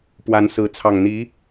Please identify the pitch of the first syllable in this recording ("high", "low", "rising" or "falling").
rising